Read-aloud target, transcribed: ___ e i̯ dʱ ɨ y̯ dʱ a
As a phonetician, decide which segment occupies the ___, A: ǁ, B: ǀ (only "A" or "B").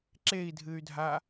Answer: A